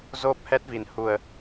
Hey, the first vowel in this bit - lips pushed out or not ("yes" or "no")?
yes